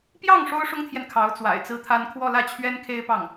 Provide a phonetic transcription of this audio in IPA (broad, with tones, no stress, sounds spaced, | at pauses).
p j ɑ˥˩ ŋ ʂ o˥ ʊ̯ ʂ ʊ˥ ŋ t̪ʰ j ɛ˨ n kʰ ɑ˧˥ ʊ̯ t͡s w a̰˨˩ ɪ̯ t͡s ɹ̩˥ t̪ʰ a˥ n kʰ w ɔ˥˧ l ä˥˩ t͡ɕʰ ɥ ɛ˥ n kʰ e˥ ɪ̯ p ɑ˥˩ ŋ